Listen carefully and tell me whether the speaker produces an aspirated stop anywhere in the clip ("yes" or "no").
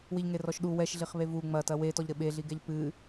no